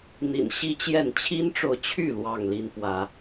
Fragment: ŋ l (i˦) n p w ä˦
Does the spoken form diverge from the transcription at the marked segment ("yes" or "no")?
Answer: no